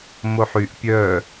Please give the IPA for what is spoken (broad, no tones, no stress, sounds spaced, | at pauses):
m o ħ y ʔ pʲ œ